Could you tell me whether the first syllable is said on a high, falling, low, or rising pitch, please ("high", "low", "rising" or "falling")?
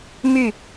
falling